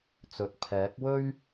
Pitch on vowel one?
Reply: rising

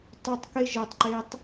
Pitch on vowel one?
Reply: high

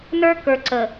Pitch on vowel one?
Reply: high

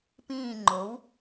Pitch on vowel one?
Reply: falling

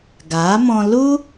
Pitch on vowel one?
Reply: rising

